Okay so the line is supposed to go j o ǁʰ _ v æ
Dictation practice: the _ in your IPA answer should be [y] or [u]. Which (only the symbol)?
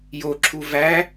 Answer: u